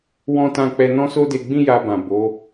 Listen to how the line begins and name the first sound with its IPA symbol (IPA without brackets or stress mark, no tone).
w